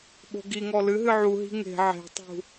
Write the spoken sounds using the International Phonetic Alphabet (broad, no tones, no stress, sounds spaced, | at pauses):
ɓ o̤ ɡ i ŋ ɔ l ɨ ɦ ɨ ʕ u ɦ i̤ ŋ e̤ ʕ e̤ tˤ ṳ